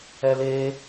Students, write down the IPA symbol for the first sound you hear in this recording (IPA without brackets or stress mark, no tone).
ɛ